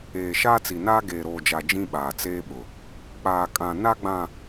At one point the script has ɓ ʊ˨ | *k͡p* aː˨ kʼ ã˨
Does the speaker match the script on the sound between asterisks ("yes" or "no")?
yes